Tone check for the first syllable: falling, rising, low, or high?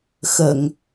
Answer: low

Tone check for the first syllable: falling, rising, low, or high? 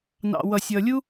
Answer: low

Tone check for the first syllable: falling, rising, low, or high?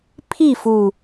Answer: falling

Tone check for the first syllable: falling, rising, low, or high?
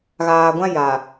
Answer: low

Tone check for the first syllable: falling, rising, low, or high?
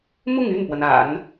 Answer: falling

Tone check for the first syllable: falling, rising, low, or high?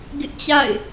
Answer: high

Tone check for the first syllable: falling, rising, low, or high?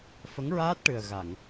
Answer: rising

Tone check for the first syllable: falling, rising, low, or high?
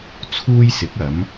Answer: high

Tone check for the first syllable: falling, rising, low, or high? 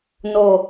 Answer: low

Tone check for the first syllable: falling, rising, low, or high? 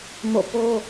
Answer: falling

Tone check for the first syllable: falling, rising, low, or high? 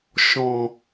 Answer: low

